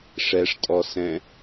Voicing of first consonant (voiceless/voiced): voiceless